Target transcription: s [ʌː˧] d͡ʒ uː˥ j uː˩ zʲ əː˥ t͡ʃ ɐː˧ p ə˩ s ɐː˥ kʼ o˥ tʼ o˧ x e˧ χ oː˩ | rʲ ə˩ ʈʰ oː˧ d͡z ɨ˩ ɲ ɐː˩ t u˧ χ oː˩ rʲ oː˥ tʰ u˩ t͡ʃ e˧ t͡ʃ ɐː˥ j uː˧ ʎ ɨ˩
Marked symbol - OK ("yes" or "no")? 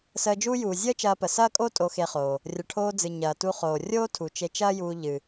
no